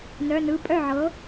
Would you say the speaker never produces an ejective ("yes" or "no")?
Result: no